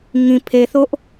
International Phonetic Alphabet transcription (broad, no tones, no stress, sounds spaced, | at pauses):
ŋ ĩ pʰ e θ o ʔ